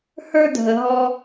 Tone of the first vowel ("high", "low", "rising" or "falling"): high